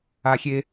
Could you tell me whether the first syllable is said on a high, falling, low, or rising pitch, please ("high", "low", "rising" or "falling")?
low